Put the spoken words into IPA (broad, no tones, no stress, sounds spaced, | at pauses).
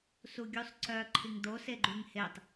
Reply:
s u ɡʲ u sˤ ǀ œ ǃʰ i ŋ d̪ o s e ɡ͡ǃ y ŋ h e tˤ